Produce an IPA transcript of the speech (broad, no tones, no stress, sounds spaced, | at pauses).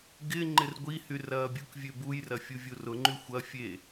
ɡ ɪ ŋ͡ǃ ɪ r ɡʷ i h y r ɐː bʲ u k vʲ ø b u j r ɐ fʲ u vʲ u r ʊ ŋ͡ǃ y xʷ ɐ fʲ e